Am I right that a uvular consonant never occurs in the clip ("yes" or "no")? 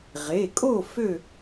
no